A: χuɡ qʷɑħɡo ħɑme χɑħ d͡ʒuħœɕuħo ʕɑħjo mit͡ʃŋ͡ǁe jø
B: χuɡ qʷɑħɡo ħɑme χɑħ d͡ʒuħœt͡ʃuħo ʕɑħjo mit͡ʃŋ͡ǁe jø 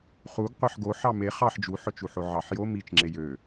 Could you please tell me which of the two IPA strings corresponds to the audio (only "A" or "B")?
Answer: B